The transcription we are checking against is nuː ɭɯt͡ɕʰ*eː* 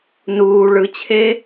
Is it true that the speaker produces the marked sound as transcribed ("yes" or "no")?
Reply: yes